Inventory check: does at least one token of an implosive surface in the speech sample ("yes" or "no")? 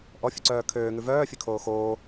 no